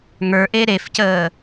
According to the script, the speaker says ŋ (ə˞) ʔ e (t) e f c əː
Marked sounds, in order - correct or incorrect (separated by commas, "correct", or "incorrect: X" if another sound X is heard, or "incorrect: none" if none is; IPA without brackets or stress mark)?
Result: correct, incorrect: ɾ